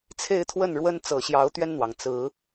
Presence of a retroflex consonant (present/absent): present